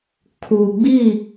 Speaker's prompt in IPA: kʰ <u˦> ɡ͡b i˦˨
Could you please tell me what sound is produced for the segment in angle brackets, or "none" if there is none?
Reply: u˨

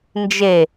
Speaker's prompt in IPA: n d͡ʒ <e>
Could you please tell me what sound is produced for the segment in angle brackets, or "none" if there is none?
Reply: e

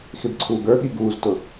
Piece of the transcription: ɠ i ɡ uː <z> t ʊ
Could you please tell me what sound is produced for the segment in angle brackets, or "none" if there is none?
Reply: z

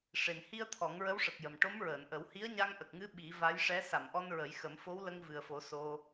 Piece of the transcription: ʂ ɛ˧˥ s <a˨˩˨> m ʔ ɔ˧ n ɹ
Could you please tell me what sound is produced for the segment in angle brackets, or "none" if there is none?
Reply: a˨˩˨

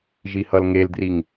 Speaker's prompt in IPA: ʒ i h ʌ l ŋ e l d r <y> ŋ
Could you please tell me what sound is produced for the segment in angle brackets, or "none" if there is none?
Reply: i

